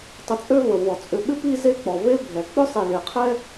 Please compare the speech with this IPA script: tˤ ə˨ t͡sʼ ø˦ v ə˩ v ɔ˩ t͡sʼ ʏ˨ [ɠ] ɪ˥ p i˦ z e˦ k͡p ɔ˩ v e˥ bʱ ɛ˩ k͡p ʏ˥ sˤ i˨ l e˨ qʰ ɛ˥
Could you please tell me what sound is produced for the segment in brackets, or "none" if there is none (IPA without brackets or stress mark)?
ɓ